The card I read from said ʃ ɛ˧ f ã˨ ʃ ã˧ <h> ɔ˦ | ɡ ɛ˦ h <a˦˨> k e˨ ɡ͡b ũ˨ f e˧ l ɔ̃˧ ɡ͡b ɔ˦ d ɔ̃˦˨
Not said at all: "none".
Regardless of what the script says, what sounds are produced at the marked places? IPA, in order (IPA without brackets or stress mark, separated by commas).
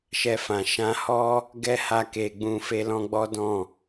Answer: h, a˧